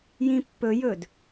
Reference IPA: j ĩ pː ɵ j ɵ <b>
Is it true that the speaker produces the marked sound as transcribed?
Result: no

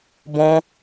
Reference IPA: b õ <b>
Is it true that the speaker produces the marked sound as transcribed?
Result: no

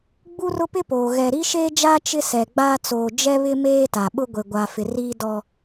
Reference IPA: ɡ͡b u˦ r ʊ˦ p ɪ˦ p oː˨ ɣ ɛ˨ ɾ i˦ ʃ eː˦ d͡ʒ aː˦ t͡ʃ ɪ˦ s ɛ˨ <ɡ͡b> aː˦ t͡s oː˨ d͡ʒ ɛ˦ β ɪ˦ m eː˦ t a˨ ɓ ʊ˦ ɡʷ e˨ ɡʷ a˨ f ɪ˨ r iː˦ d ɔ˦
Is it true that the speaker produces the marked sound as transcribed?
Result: yes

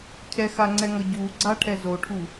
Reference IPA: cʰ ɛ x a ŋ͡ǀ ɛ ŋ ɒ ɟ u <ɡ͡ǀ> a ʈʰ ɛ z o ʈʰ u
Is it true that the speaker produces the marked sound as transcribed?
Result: yes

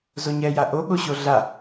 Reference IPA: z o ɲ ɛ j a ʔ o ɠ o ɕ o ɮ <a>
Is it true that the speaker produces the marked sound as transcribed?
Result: yes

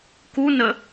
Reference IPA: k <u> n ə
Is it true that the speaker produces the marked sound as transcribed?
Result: yes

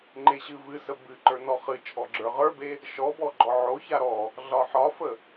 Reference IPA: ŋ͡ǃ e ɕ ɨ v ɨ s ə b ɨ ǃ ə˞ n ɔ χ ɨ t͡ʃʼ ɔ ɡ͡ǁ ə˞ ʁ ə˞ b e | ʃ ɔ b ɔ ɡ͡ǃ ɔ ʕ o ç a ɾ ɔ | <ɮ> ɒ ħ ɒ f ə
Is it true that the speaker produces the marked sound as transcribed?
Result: yes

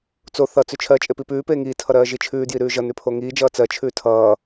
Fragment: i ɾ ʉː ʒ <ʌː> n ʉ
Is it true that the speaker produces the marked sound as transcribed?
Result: no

